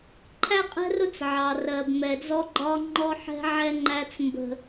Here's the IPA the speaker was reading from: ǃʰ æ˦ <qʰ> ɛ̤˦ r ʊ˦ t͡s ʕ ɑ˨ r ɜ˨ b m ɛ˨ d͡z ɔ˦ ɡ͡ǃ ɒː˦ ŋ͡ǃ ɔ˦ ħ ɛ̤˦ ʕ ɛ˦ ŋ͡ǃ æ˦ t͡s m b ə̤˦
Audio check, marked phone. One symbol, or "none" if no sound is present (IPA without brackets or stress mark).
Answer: qʼ